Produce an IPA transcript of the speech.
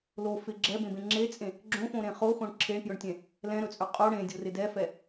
lo fɪ ɡ͡ǁɛbẽbẽ ŋ͡ǁet͡sʼẽ | ɡ͡ǁõfõɾẽ χoxõɳ ǁʰeɳpjɵɳtʲɛ̃ | lɛ̃ɾɵt͡sʼɵ qʼo ɽẽdʲorɪ dɛfɛ

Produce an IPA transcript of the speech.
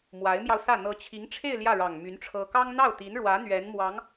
mwa˧˥ɪ̯mjɑ˧ʊ̯sä˥˩ n̪ɤ˧˥t͡ɕʰi˧˥ŋʈ͡ʂʰe˥˧ɪ̯ ljä˥˩ɻɑ˨˩ŋmy˧˥n ʈ͡ʂʰɤ˥ kɑ˥ŋn̪ɑ˥˩ʊ̯t̪i˧˥nɻwä˧˥ n̪ɥɛ˧˥nmwɑ˧˥ŋ

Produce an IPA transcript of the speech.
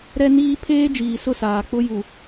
ɾɛ˦niː˦ pʰeː˦d͡ʒiː˨sʊ˦˨saː˨ k͡pʊ˦ju˨

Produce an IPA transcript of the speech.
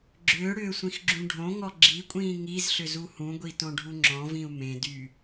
ɡ͡ǁʏːɽʏːsʷĩxɡ͡ǁũ ɖʱõŋɔ ɡ͡ǁikʷʼĩː ŋizɬʏzu hũɡʷitõɖʱu ŋ͡ǁɔ̃vĩu̯ mẽdy

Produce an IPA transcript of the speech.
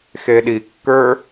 xeɗikːə˞

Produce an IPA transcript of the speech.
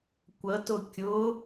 kʷətʊ kʲʊ

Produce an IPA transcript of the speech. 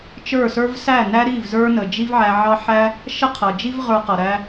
t͡ʃə˞˦˨sə˞˦v sæ˦˨næ˦ɾi˦˨v zə˞˦nə˨d͡ʒi˦vʕæ˧ ʕɑ˦ħæ˦ | ʃə˦qʰʌ˨d͡ʒi˦v ʁə˞˧qʌ˨ɾæ˧

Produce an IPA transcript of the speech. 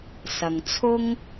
sɐ˨ŋt͡sʰʊ˥ŋ

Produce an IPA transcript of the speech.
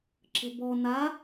ǁə̤bɔ na

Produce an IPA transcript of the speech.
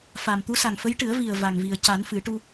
fa˨˩mt̪u˧˥sa˨˩ŋfə˧˥j ʈɨ˨˩˦ə̯vi˨˩ə̯ va˨˩ŋvi˨˩ə̯ca˨˩˦n fɨ˨˩˦ʈu˧

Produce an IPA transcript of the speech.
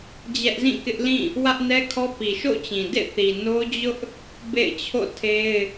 d͡ʑɛ˦ʔzĩ˦˨kɪ˦ʔlĩ˦˨ | wä˦ʔnɛ˦kʰɔ˦pi˨ ʃo̰˦˨t͡ɕĩ˨dḛ˦˨ θi˨ no˦d͡ʑʊ˦ʔ | bḛ˦˨ɪ̯t͡ɕʰo̰˦˨ tʰe˦ɪ̯

